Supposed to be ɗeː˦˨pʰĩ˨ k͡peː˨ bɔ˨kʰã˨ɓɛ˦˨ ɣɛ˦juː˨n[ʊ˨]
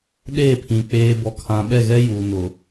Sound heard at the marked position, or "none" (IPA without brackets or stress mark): ʊ˨